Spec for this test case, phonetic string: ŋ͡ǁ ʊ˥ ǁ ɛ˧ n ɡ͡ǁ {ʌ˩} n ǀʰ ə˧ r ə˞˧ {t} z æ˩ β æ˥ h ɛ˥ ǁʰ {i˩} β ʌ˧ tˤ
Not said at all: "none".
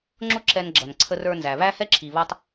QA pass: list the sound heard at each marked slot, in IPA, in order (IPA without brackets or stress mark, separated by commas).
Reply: ʌ˩, n, i˩